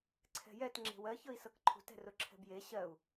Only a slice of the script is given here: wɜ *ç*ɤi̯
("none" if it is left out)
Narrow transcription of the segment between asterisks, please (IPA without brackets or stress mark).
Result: ç